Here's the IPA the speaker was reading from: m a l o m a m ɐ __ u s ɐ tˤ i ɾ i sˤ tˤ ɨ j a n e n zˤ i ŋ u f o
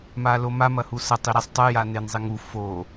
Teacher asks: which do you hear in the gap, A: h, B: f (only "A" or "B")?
A